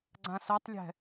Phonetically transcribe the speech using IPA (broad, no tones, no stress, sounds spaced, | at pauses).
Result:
ɡ͡ǀ ã s ɜ tˤ lʲ ɛ̤